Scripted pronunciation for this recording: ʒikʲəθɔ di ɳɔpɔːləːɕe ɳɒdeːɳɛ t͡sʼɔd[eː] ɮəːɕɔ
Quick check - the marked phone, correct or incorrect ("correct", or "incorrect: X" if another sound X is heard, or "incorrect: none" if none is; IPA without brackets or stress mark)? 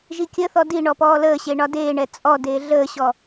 correct